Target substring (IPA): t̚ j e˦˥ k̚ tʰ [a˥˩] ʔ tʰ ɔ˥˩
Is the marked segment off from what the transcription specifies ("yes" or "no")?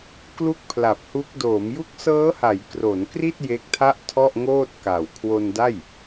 no